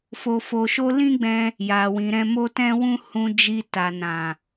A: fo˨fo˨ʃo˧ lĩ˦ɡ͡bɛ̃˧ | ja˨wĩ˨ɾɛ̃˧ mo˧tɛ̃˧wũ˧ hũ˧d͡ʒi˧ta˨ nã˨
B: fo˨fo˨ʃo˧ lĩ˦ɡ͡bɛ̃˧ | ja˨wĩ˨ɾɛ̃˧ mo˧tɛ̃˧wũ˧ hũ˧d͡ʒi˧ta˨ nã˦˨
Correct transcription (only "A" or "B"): A